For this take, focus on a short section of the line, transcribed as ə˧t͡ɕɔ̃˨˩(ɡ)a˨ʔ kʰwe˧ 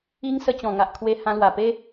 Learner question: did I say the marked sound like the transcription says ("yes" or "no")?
no